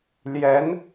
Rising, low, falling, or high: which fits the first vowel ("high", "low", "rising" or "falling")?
rising